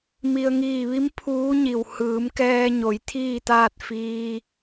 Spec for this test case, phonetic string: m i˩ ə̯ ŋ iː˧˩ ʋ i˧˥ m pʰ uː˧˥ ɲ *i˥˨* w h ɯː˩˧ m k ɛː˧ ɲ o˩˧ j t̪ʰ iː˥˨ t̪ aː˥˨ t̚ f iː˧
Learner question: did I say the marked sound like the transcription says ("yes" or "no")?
no